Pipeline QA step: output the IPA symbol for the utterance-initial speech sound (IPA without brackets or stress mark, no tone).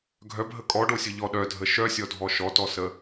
ɡʱ